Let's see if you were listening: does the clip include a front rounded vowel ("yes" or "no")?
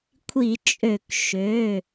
yes